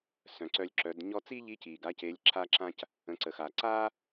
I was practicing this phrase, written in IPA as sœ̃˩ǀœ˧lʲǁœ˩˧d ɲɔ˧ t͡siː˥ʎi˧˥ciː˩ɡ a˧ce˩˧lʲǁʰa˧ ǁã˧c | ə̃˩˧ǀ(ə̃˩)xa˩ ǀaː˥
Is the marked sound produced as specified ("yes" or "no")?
no